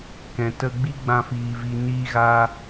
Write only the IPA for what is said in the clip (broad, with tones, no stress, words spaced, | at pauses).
kɛ̃˨tə˧ ɡ͡bi˦ɡ͡bã˧ fiː˨vi˨ niː˧ɣa˧